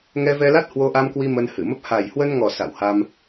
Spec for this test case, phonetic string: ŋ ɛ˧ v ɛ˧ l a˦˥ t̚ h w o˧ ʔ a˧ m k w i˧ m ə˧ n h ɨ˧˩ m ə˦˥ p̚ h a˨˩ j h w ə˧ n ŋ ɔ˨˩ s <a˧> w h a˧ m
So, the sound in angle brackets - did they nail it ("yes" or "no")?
no